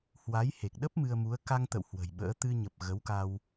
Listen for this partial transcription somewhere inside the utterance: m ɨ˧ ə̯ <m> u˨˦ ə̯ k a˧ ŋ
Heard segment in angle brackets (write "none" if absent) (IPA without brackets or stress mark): m